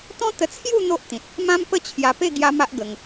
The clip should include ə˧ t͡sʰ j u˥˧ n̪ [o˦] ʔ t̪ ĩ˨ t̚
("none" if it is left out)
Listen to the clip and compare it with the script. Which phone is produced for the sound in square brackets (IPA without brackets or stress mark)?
o˦